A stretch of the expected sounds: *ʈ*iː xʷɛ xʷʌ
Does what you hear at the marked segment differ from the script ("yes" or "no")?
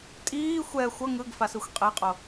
yes